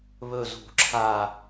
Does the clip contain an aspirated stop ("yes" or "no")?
yes